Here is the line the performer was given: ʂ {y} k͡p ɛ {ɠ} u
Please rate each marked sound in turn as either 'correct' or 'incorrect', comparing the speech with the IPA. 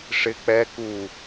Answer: incorrect: ɪ, incorrect: k

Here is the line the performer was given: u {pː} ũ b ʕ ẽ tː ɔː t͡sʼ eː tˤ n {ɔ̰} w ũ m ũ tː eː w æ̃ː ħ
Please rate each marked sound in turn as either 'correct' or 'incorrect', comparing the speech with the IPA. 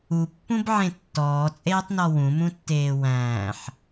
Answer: correct, incorrect: ɔ

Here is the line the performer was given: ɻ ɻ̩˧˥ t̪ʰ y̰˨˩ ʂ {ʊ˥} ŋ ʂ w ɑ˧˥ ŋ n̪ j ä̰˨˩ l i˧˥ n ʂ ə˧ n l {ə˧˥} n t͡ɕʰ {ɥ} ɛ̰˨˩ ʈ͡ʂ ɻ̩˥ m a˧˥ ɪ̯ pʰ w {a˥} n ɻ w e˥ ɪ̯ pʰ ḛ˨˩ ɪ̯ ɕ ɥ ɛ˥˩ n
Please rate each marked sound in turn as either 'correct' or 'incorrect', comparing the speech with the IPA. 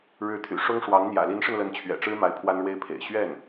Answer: correct, correct, correct, correct

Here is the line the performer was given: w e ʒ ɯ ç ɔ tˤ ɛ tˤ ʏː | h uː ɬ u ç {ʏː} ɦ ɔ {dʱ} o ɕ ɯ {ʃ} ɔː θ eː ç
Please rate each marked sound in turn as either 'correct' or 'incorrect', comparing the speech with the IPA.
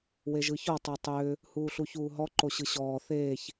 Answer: incorrect: uː, incorrect: ǃ, incorrect: ɕ

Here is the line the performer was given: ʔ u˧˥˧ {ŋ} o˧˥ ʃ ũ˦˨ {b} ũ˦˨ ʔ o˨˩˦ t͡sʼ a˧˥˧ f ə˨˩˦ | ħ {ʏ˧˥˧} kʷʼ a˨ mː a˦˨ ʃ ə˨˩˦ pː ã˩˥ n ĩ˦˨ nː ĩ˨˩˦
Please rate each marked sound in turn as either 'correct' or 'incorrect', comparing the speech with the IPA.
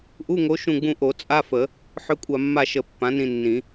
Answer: correct, incorrect: ɡ͡b, correct

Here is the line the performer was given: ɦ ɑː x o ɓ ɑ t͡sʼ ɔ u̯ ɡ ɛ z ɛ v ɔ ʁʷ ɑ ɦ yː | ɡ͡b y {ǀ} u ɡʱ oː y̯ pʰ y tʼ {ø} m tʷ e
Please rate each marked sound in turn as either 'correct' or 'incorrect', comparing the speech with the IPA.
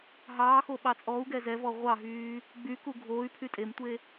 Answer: incorrect: k, incorrect: e

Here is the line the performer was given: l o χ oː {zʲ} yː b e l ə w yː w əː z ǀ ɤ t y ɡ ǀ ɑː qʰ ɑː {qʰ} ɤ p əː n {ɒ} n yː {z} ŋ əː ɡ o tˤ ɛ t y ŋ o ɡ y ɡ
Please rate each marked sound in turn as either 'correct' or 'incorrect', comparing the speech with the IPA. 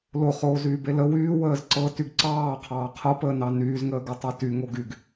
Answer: incorrect: z, correct, incorrect: ɑ, correct

